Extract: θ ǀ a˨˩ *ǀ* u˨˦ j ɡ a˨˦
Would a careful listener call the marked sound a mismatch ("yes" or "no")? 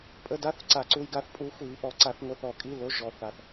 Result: no